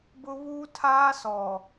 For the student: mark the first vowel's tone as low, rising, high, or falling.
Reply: high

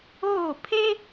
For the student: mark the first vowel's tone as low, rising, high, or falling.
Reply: falling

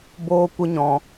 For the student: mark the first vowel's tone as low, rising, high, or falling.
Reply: high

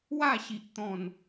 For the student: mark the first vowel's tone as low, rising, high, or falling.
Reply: falling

